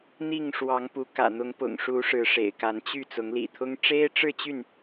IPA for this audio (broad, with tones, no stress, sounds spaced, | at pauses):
n̪ i˥˨ ŋ ʂ w ɑ˨˦ ŋ p u˨˦ k ä̰˨˩ n̪ ʊ˨˦ ŋ p ʊ̰˨˩ ŋ ʂ u˨˦ ʂ ɻ̩˨˦ ʂ ḛ˨˩ ɪ̯ k a˨˦ n t͡ɕ y˥˨ t͡s ʊ˨˦ ŋ l ḭ˨˩ t̪ʰ ʊ˦ ŋ ʈ͡ʂ e˦ ɪ̯ ʈ͡ʂ ɻ̩˥˨ t͡ɕ y˥˨ n